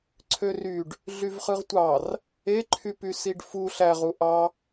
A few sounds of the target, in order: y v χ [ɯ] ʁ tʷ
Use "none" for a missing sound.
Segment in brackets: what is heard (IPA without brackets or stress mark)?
ɯ